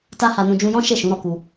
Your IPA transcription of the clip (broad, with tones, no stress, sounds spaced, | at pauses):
t a˦ h a˧ n ũ˧ d͡ʒ ũ˧ j ɔ̃˦ ʃ e˦˨ ʃ ũ˨˦ ɾ ɔ˧ k u˧